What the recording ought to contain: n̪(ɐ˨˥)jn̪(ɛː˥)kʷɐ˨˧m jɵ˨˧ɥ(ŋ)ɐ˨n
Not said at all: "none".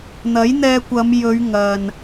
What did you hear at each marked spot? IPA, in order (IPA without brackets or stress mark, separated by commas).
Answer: ɐ˨˥, ɛː˧, ŋ